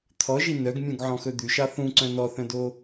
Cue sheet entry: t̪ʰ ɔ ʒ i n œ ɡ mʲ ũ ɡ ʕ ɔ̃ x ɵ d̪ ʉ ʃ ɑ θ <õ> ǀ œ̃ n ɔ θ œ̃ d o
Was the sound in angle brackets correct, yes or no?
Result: no